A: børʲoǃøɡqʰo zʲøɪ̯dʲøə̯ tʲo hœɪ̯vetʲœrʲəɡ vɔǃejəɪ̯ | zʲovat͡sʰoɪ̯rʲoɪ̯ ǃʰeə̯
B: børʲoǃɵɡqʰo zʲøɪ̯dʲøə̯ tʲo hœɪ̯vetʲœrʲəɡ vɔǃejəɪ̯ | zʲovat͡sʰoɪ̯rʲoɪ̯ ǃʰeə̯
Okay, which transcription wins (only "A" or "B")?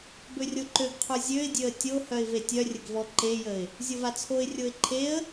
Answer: A